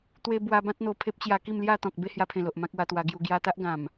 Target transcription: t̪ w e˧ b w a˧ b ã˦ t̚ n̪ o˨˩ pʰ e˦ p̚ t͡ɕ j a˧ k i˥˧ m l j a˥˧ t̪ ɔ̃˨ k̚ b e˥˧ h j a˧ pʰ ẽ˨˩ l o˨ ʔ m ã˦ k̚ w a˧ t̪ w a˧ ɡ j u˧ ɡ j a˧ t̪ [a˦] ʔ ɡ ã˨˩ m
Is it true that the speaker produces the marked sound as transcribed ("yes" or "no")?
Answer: yes